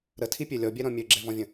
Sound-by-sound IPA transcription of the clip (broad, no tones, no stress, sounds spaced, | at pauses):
ɾ ə tʰ i pʲ ø lʲ ɔ bʲ ɛ ɾ ɔ̃ mʲ ø ɡ͡ǁ ɛ v ɔ̃ vʲ ə̃